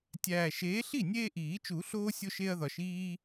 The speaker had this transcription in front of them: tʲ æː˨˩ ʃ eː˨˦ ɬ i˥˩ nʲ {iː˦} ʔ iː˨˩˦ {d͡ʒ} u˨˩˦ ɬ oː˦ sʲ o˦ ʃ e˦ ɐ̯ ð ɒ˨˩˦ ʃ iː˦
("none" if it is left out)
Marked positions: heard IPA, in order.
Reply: eː˦, t͡ʃ

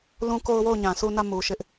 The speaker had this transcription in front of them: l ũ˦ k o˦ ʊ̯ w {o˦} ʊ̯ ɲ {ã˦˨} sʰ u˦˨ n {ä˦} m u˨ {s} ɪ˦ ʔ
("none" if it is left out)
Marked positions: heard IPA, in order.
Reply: o˦˨, ã˨, ä˦˨, ʃ

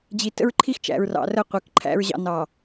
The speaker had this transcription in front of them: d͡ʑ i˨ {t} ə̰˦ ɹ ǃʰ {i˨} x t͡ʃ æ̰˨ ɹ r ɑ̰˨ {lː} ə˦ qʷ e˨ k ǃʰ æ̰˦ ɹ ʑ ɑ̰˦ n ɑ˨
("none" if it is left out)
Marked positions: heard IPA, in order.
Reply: t, i˦, r

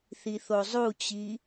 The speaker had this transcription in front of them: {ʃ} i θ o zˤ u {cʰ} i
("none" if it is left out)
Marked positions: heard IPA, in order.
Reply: θ, t͡ɕ

